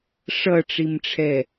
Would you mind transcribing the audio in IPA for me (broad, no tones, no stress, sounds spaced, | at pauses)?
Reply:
ʂ ʌ ʈ͡ʂ i m ʈ͡ʂʰ ɛ